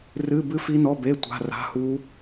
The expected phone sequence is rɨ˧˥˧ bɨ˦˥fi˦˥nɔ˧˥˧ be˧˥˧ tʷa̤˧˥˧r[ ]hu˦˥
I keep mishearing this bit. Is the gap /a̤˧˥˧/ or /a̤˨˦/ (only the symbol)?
a̤˧˥˧